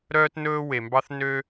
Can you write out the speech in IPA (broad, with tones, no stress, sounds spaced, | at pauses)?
ɾ œː˥ t n ɵː˥ w e˩ m b ɑ˥ θ n ø˦